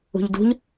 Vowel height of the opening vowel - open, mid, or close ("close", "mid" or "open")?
close